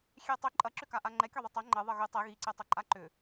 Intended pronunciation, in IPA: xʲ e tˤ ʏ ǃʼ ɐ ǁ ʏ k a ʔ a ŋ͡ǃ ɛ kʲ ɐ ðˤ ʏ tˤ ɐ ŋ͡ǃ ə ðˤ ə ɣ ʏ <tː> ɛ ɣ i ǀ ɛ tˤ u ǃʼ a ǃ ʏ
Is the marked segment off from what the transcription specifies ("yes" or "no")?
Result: yes